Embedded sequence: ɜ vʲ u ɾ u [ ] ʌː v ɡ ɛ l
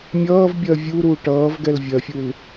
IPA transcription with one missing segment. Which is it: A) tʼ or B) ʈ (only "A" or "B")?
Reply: B